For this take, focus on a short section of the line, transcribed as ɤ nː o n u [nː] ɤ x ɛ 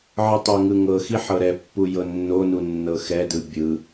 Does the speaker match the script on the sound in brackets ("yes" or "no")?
yes